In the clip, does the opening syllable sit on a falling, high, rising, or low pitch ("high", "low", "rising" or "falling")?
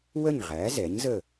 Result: falling